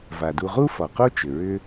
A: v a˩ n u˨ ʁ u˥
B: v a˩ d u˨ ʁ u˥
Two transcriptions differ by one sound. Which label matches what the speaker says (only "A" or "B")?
B